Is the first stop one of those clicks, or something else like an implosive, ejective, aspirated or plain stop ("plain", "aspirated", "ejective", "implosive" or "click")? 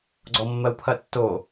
click